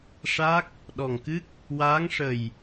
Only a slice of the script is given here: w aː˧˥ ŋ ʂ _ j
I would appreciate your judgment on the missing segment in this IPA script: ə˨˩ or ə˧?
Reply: ə˨˩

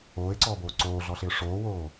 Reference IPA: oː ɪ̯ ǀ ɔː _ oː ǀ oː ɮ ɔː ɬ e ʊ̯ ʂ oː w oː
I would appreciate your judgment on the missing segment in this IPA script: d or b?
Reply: b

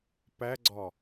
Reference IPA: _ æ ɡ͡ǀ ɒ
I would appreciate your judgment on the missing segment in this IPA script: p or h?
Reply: p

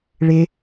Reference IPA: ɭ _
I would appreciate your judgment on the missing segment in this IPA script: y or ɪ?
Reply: ɪ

